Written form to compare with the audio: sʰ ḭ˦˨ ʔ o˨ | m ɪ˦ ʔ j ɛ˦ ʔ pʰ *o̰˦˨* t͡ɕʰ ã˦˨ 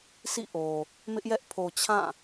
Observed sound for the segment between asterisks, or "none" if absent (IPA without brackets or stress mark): o˨